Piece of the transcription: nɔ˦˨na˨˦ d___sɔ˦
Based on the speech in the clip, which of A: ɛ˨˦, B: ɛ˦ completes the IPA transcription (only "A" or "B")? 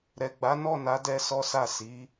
B